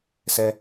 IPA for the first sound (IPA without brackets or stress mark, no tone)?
s